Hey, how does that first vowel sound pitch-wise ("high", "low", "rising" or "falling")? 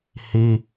high